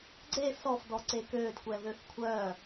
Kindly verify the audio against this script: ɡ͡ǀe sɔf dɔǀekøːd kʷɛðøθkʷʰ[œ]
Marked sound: correct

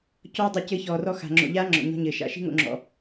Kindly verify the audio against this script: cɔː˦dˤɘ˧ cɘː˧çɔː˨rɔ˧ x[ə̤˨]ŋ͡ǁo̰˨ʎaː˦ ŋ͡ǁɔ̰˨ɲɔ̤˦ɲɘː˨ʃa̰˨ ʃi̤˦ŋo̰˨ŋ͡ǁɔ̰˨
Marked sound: incorrect: a̤˨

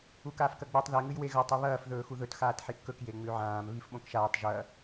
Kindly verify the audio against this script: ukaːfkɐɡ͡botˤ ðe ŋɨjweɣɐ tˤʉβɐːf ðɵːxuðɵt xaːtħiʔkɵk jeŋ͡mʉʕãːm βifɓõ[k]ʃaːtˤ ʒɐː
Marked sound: correct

